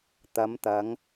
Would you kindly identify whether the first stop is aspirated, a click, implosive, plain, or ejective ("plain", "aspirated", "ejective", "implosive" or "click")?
plain